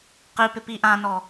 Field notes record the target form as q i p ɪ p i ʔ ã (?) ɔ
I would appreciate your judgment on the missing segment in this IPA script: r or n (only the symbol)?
n